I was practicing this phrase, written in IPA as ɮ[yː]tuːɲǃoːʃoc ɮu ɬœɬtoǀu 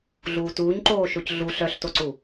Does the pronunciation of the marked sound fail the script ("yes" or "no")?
yes